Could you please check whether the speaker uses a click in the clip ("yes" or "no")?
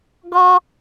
no